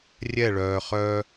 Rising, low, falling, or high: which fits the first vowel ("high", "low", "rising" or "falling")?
falling